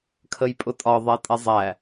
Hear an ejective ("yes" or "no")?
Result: yes